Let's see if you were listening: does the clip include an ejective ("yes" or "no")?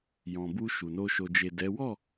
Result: no